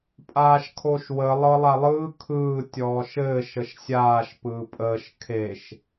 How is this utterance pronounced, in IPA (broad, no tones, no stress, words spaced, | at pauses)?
pʼaːʃkʰoʃwə lˠɤlˠalˠɯː kʰɯː tʲɔːʃɘː ʃəʃsʲaːʃ pɯːpʼəːʃ kʰeʃ